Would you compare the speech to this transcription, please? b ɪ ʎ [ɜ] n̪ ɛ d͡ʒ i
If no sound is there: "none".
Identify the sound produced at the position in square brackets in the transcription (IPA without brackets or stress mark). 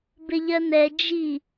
ɜ